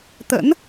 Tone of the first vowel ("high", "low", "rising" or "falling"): rising